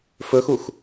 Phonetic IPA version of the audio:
f ɵ x u x

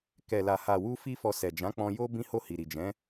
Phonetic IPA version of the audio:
k ɛ˨ l a˨ h a˨ w u˧ f i˧ f ɔ˨ s ɛ˨ d͡ʒ ã˨˦ k͡p ɔ̃˧ j o˦ b ĩ˦ h o˦˨ h i˨ ɾ i˨ d͡ʒ ɛ̃˨˦

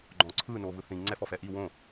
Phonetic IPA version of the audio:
ɡ͡ǃ ɔ̃ ǀʰ ɯ n o v ɯ θ ĩ ŋ͡ǀ ɛ f ɔ f ɛ ʔ i w õ

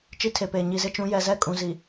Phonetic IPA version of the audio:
t͡ʃ i˦ tʰ e˨ p eː˨ ɲ i˨ z ɪ˦ t͡ʃ ũ˨˦ j ɛ˨ z ɛ˦˨ kʼ ũ˨ z i˨

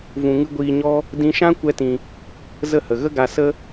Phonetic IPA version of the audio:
v ũ˧ ŋ ɨ˦ ɡʷ iː˧ ɲ ɔ˦ | d ĩ˧ ʃ ã˦ kʷ ɛ˦ t ĩ˧ | z ə˦˨ h ə˨ ɣ ə˦ ɡ a˧ s ə˦

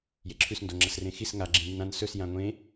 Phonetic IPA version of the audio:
j e ǁʰ ʉ s n d o ŋ͡ǁ ɐ s r ẽ x i s ŋ a ɡ͡ǁ ĩ n i n ã n s ɵ s j ã ŋʷ ẽ

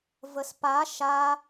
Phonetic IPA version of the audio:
v ə s p a ʃ a

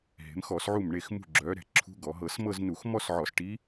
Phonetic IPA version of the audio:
ɦ e̤˩˧ m x ɔ˧˩˧ s ʕ u˧˩ m ɳ e˧˩ x m ṳ˧˩ ɡ͡ǁ œ˩˧ ɾ ɛ̤˧˩ ǁʰ ṳ˧˥ ɡ ɔ˩˧ ɦ ɤ˧˩˧ s m ɤ˥˧ z n u˧˩˧ x m ɔ˥˧ s ʕ ɔ˧˩˧ s ʈ i˧˥

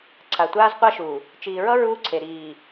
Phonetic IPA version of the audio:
ǀʰ a˨ tʷ aː˦ z qʷ a˦ ʃ uː˨ | t͡ʃ iː˨ ɹ ʌ˦ ɹ uː˦ ǀʰ e˨ ɾ iː˨

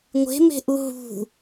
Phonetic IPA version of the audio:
ŋʷ e̤ m e̤ ʔ u ɦ ṳ

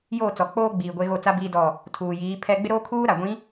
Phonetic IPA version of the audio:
j oː˦˨ t͡s ɔ˨ k͡p oː˦ ɡ͡b iː˨ ɡʷ e˦ ɣ o˦˨ t͡s a˦ b i˦ d ɔ˦˨ | tʰ uː˨ j iː˨˦ pʰ ɛ˦ ɡ͡b ɪ˦ ɾ oː˦ kʰ uː˦ ɾ a˨ ɡʷ ĩ˨˦

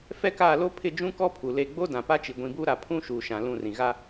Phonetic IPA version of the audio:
f ɛ˦ k aː˦˨ l o˦ pʰ ɪ˦˨ d͡ʒ ũ˦ k ɔ˦ pʰ u˨ l e˦˨ ɡ͡b o˦ d ã˨ p a˦ t͡ʃ i˨ ɡʷ ĩ˨ b u˦ ɾ a˨ pʰ ũ˦ ʃ uː˨ ʃ ã˨ l ũ˦˨ r ĩ˨ ɣ a˦

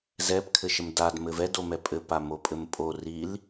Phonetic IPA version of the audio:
z ɛ p kʰ ɘ ʃ ə m d a d m ɘ v ɛ d o m ɛ pʼ ɘ p a m o pʼ ɘ m pʼ o r i l

